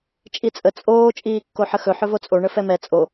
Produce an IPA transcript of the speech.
t͡ʃʼit͡sʼə t͡sʼoː t͡ʃʼiːkːoħəxɵ ħɵvot͡sʼo ɳəfɛmɛ t͡sʼo

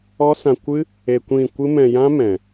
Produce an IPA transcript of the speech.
ɔ˦sã˧kʷɨ˦ | e˧kʷĩ˦˨ kʷɨ˦mɛ̃˧jã˦mɛ̃˨

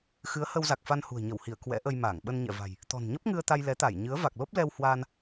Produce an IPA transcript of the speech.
xɨ˨˦ə̯hə˧wza˨˩k̚fa˧n hṳ˨˩ə̯ɲə˧˩whi˧˩ə̯ kwɛ̰˧˥ʔə˧jmaː˧˩ŋ ɓə˧nɲɛ̰˧˨va̤˨˩j | t̪ɔ̤˨˩n ɲə˦˥p̚ŋɨ˧ə̯ t̪a˧j lɛ˨˦t̪a˧˩j ɲɨ˨˦ə̯ va˨˩k̚lo˦˥p̚lɛ˧w hwaː˧n

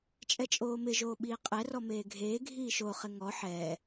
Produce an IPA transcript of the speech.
t͡ʃʼɛt͡ʃʼoːmɪ ʒoːɓiːqʼɛ rɔmeːɡʱeː ɡʱiːʃo χɪŋɔ ħɛː

